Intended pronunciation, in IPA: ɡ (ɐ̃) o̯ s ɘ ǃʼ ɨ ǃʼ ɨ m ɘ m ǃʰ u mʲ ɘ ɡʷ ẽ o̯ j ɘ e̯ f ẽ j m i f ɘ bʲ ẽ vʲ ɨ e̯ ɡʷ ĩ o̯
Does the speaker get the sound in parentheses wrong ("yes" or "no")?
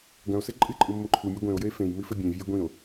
no